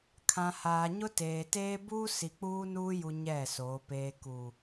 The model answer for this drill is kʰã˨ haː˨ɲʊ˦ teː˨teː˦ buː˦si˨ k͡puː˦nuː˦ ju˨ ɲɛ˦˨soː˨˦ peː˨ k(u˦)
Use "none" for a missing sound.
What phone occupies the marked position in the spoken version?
u˨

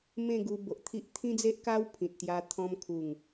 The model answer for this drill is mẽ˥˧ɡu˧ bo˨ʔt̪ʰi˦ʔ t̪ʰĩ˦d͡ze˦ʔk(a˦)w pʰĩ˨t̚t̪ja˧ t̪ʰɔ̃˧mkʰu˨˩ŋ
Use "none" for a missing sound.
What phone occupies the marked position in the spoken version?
a˦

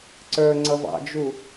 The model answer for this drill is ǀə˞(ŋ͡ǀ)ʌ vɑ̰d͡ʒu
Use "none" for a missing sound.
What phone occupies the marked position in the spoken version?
ŋ͡ǀ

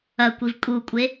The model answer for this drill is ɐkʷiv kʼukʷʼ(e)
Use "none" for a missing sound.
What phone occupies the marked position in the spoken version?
e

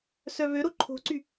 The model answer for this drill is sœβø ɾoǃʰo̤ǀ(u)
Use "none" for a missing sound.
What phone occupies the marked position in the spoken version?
y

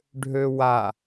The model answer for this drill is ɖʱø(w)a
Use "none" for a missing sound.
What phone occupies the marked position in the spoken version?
w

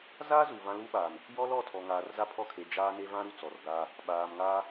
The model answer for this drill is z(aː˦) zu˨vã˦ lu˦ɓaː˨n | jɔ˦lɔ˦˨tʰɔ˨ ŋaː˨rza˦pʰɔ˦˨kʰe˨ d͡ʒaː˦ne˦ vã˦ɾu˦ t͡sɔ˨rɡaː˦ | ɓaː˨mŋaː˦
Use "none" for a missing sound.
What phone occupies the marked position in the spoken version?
aː˦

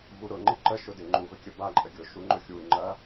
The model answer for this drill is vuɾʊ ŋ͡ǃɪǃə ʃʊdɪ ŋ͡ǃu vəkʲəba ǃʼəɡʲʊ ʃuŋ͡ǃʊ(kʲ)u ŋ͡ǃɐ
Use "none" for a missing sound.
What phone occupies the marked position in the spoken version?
xʲ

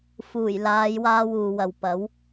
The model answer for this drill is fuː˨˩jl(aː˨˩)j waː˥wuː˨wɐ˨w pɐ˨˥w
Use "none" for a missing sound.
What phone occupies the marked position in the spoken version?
aː˨˧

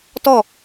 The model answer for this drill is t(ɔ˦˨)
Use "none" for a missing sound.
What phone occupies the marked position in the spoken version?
ɔ˦˨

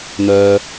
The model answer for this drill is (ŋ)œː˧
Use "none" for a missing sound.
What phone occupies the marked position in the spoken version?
n̪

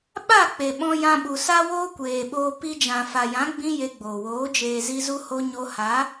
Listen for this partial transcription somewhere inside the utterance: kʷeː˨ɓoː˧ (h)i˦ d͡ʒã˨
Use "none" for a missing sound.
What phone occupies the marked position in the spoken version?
p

